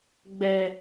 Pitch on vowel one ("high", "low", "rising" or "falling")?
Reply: high